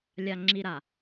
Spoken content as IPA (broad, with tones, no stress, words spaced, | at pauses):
lʲa˨ŋ͡ǁi˨ɾa˨